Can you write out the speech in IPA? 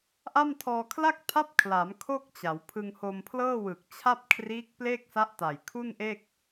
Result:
ʔ a˥˩ m tʰ ɔː˧ kʰ l a˥˩ k̚ tʰ a˦˥ p̚ kʰ l a˩˦ m kʰ o˥˩ k̚ t͡ɕ a˩˦ w pʰ ɯ˧ ŋ h o˧ m pʰ l ɤː˥˩ w ɯ˨˩ k̚ t͡ɕʰ a˥˩ p̚ kʰ r iː˦˥ k̚ p l eː˥˩ k̚ s a˦˥ ʔ t a˨˩ j kʰ u˥˩ n ʔ e˥˩ k̚

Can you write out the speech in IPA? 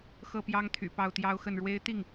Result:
x ɤ˥˩ p j ɑ˥ ŋ t̪ʰ y̰˨˩ p ɑ˥˩ ʊ̯ t̪ j ɑ˥ ʊ̯ x ə˥˩ n ɻ w e˥ ɪ̯ t̪ i˥˩ ŋ

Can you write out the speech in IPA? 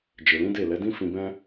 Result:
d͡ʒ e˨ l ĩ˨˦ d e˦˨ l ɛ˨˦ d ĩ˦ f ĩ˧ b ɛ̃˦

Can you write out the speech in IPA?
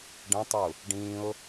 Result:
ɖ ə̃ tˤ u | ɖ ĩ ʊ̯

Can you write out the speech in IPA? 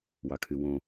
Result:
w ɑ kʰ y w õ

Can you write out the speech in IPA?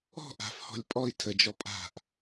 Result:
ɔ̤ ʔ a̤ f h ɔ̤ lʲ pʼ ɔ i̯ tʰ ə d͡ʒ ɔ pʼ a̤ ʔ

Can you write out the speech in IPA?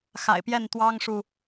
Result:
x a̰˨˩ ɪ̯ p j ɛ˥˨ n t̪ w ɑ˦ ŋ ʂ u˨

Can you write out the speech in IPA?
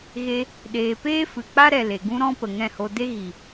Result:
ɣ e˧ | ɗ eː˨ p eː˦ f ɨ˨ k͡p a˦ ɾ ɛ˨ l e˨ ɡ ũ˦ ɾ ɔ̃˦ p ə˨ ŋ ɛ̃˦˨ h o˧ d e˦ ɣ i˨

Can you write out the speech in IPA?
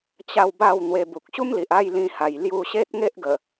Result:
t͡ɕ a˥˧ w b a˥˧ w n̪ w e˧ b u˨ k̚ ɕ u˦ m l i˨ ʔ a˥˧ j l ĩ˧ h a˨˩ j l j u˧ ɕ e˦ t̚ ŋ e˦ ʔ ɡ ə˨˩

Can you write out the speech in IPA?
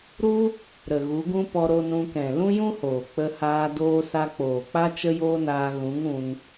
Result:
ɾ u˦ | ɾ ə˨ ɣ u˨˦ ɡ ũ˦ p ɔ˧ ɾ o˧ n ũ˧ k ɛ̃˨ l ũ˦ j ũ˦ h oː˨ k͡p ə˧ h aː˧ d oː˧ s a˧ k͡p oː˨ k͡p a˦ t͡ʃ ə˦ j oː˦ n aː˧ ɣ ũ˨˦ ŋ ũ˧ n

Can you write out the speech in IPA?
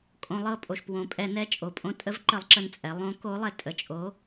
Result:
kʼ õ˩ lˠ ɤ˧˩ pʼ o˩ ʃ p w õ˩ pʼ ɛ˧˩˧ n ɛ˧˥ t͡ʃʼ o˩ pʼ õ˧˩ tʼ ə˧˥ v ǃ ə˧˩˧ lˠ ǁ ə˧˩ n t͡sʼ ɛ˩˧ lˠ õ˧˥ k o˧˥ lˠ ɛ˧˩ tʼ ə˧˩ t͡ʃʼ o˧˥

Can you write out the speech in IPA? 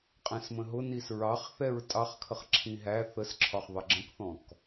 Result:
qʼ ɛ̃ s m ə̃ ɦ ʊ n i s ɹ ɑ χ θ ɛ ɹ tʼ ɑ χ kʰ ə χ ǁʰ ĩ ɦ æ θ ə s ǁʰ ɒ χ ðˤ ə ɡ͡ǁ ə̃ k θ ɔ̃ k

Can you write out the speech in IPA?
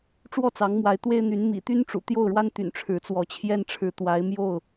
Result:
ʈ͡ʂ w ɔ˥˨ t͡s ɑ˨˦ ŋ m w a˨˦ ɪ̯ t̪ w e˦ ɪ̯ n̪ y˨˦ n m ḭ˨˩ t̪ y˦ n ʈ͡ʂ ṵ˨˩ t̪ j o˥˨ ʊ̯ ɻ w a˦ n t̪ y̰˨˩ n ʈ͡ʂʰ ɻ̩˨˦ t͡s w ɔ˨˦ t͡ɕʰ j ɛ˦ n ʈ͡ʂʰ ɻ̩˨˦ t̪ w a˨˦ ɪ̯ m j o˥˨ ʊ̯

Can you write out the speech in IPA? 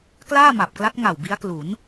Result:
k l aː˥˩ m a˨˩ p̚ k l a˦˥ t̚ ŋ a˨˩ w b i˦˥ a̯ k l u˩˦ n

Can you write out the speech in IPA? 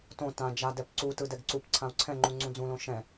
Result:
t õ t ã d͡ʒ a d ɛ p ǀ u t ɯ d ɛ ɡ ǀ u p ǀʰ ã u̯ ǀʰ ɛ̃ ŋ͡ǃ u ŋ͡ǀ ũ d͡z ũ l õ ʃ ɛ̃

